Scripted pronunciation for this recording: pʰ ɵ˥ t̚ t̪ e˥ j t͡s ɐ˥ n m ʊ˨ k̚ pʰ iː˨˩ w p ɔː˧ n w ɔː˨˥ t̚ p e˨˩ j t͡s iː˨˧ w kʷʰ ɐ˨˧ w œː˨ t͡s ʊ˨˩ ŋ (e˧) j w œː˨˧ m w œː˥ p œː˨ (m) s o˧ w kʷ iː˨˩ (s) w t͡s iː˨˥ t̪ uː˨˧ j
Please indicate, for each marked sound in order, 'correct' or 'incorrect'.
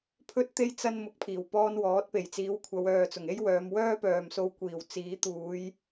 incorrect: e˥, correct, incorrect: none

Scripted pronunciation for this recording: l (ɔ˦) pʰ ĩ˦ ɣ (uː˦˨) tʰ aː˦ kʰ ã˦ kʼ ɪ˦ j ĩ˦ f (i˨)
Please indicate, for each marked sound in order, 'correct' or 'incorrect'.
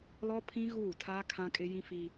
correct, correct, incorrect: i˦

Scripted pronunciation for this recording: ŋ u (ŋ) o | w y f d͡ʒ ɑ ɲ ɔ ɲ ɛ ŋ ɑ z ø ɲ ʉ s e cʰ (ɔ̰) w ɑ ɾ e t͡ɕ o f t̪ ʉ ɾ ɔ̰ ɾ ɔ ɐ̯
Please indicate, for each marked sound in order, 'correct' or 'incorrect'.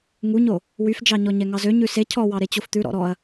incorrect: ɲ, incorrect: ɔ

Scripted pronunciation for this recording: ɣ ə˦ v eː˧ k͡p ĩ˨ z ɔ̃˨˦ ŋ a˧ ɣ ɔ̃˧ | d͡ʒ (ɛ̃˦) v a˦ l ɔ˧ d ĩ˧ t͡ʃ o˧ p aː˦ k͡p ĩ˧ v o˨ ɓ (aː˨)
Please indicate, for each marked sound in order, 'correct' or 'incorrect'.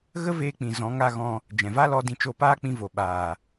incorrect: ɛ̃˨, correct

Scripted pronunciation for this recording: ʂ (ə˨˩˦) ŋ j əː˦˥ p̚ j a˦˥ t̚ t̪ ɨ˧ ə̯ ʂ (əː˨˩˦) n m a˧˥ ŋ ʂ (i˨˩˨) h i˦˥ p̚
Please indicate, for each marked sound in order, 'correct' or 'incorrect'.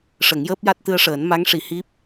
correct, correct, correct

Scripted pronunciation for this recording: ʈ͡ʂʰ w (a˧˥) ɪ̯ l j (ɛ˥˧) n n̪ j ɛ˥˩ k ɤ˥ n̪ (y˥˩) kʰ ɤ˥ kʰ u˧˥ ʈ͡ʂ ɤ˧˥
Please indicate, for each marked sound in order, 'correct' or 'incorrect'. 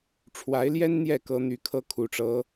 correct, incorrect: ɛ˥, correct

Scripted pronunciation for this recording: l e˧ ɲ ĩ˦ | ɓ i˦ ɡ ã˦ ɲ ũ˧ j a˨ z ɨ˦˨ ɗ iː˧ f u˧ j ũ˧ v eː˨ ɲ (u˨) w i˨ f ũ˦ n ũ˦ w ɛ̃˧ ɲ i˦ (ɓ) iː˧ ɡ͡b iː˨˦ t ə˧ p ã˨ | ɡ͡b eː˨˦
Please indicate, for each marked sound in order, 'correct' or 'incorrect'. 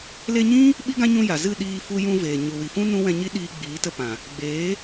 correct, incorrect: ɗ

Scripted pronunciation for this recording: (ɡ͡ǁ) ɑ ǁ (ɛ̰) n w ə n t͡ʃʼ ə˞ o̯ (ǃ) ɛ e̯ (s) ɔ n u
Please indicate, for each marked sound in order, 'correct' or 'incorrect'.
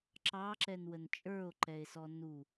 incorrect: ǁ, incorrect: ɛ, correct, correct

